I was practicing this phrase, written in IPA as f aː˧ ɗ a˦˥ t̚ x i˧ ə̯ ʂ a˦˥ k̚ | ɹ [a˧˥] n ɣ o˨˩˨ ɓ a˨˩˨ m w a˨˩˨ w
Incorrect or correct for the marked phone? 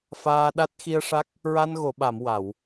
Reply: incorrect: a˧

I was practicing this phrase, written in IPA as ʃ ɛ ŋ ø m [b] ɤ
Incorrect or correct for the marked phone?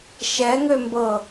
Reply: correct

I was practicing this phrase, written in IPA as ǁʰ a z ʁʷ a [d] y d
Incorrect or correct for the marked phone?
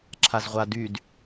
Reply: correct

